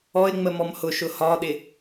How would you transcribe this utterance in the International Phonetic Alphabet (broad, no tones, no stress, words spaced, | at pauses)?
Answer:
ɔɪ̯ŋ͡mə mɔmhʊʃʊ hɒɗɪ